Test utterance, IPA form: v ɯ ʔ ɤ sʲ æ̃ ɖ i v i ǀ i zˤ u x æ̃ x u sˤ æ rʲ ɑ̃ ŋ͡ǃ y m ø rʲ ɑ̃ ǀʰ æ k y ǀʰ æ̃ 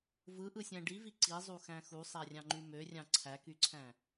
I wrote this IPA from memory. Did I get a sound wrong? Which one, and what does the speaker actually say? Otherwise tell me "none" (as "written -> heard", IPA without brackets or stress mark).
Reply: ɤ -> ɯ